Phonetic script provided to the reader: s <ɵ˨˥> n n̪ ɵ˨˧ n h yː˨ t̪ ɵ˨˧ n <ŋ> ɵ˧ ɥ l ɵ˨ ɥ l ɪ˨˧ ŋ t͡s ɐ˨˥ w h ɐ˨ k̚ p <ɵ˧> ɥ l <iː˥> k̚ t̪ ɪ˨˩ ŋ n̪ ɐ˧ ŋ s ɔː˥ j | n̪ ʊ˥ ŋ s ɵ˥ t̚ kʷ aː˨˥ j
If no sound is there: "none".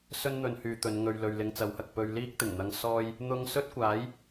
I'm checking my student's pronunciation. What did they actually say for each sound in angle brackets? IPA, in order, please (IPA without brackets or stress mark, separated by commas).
ɵ˥, ŋ, ɵ˧, iː˥